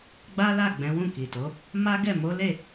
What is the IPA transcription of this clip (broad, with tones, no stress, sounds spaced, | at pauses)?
ɡ͡b a˦ l a˦˨ ɡ͡b ɛ̃˨˦ w ũ˦˨ k i˨ t o˨˦ | m a˦ ɡ ɛ˦˨ m o˨˦ l e˦˨